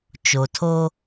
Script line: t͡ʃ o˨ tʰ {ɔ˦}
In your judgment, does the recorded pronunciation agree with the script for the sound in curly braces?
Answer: no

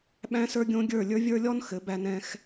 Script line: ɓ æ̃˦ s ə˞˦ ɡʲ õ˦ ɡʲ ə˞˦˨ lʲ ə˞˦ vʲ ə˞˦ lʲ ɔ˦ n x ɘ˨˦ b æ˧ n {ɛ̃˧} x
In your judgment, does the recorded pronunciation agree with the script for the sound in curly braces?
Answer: yes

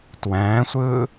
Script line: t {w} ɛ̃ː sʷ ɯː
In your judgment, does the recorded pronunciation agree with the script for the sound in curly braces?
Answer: yes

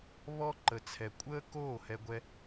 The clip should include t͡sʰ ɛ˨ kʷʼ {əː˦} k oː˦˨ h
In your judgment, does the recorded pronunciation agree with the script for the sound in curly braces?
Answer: yes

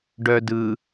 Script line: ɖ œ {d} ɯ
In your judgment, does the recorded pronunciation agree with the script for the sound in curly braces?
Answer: yes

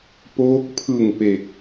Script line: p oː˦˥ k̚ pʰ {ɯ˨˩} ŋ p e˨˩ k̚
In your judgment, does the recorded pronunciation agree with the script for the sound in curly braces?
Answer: yes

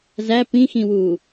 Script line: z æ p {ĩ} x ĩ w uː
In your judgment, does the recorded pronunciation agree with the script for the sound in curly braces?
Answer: yes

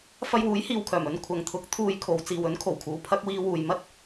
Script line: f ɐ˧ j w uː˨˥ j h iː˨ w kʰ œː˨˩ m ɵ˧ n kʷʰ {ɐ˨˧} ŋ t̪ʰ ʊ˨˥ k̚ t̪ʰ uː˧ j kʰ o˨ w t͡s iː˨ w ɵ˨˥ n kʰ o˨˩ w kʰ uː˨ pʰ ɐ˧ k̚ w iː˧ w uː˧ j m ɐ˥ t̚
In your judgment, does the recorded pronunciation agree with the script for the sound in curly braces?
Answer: yes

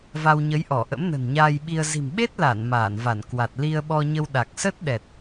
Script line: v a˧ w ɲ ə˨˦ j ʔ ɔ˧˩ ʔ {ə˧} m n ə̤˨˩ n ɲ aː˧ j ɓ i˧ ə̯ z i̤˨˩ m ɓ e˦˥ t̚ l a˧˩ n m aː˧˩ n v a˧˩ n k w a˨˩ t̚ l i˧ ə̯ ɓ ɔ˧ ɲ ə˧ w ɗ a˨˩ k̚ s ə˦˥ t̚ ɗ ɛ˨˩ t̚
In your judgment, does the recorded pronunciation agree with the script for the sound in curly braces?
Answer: no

